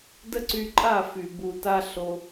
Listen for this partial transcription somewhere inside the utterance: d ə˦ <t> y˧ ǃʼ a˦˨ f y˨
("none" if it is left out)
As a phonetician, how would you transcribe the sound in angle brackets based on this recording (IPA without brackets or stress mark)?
ǀ